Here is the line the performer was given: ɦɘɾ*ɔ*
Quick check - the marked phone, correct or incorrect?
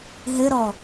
correct